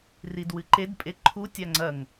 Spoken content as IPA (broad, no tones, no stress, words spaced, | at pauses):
ridwɨǃed pʼeǃʰu tʲaŋ͡ǀɐŋ